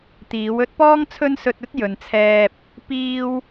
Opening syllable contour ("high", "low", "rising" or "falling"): rising